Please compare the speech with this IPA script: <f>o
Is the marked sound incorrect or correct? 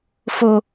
correct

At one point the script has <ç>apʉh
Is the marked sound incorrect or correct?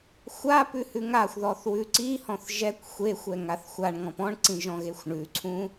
incorrect: xʷ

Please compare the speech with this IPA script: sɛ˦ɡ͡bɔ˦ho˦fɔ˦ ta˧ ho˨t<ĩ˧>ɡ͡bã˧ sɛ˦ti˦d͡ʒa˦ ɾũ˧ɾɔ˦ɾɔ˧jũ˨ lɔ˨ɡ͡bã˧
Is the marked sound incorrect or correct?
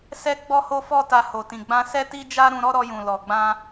incorrect: ĩ˨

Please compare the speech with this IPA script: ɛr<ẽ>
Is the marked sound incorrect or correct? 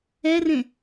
correct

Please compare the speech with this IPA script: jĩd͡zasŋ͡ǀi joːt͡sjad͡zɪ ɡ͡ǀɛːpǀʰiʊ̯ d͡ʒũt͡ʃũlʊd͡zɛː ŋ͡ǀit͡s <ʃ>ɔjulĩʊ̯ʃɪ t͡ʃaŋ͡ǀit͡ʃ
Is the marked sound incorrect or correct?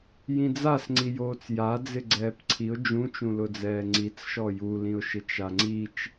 correct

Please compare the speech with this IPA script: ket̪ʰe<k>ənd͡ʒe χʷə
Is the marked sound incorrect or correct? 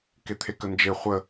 correct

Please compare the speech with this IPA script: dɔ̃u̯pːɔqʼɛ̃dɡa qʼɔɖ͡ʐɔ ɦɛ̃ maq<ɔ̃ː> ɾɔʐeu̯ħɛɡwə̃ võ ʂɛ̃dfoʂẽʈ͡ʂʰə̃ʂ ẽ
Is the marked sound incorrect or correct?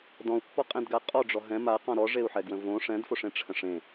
incorrect: ɔ̃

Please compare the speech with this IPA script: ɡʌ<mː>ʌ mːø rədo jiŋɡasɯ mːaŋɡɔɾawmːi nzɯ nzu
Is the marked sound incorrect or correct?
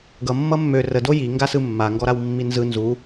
correct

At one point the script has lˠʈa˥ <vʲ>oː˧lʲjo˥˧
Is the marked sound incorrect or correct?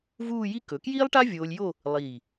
correct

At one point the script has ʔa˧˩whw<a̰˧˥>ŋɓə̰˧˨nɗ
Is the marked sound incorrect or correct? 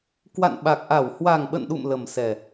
incorrect: a˨˩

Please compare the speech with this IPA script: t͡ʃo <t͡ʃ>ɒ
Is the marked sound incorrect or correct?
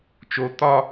incorrect: t̪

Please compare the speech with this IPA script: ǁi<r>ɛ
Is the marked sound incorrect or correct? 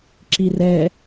correct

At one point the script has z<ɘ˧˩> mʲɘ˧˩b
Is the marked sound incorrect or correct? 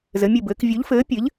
incorrect: ɘ˩˧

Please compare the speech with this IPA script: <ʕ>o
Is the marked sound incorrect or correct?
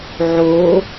correct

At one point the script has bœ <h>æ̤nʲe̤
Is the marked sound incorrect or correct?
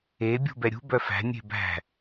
incorrect: f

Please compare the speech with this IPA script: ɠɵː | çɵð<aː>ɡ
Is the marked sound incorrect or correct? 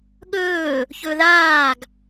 correct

